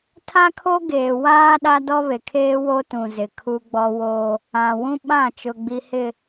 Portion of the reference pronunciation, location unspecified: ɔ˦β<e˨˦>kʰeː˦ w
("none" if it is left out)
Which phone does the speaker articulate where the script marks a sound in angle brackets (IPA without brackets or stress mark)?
e˨